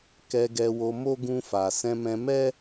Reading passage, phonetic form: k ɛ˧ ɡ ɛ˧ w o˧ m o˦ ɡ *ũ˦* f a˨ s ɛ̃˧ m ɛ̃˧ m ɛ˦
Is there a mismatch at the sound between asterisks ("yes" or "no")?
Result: yes